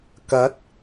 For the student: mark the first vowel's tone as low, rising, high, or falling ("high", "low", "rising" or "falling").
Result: rising